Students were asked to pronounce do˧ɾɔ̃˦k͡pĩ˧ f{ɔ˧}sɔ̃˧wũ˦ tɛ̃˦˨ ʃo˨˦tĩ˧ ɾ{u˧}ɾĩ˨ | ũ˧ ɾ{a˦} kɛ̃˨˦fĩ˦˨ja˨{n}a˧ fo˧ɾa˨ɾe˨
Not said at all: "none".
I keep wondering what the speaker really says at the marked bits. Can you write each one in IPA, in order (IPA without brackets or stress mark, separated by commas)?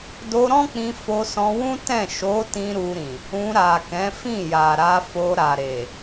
o˧, u˧, a˨, ɾ